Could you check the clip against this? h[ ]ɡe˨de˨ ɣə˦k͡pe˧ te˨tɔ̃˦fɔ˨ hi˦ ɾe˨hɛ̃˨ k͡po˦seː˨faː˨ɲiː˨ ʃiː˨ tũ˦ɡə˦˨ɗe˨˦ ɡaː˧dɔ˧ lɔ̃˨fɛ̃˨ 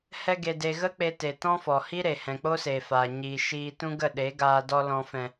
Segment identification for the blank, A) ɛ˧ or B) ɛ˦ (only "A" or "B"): A